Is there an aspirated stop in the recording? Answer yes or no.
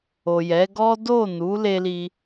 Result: no